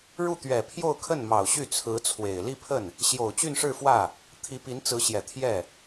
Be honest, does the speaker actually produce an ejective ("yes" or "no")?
no